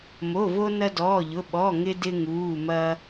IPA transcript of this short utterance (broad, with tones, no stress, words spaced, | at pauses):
mo˩˧˩vo˧ nɐ˧dɔː˩˧˩ʎʊ˩˧˩ ɓɔ˩˧˩ŋɪ˧ dɪ˧ ŋuː˩˧˩mɐ˧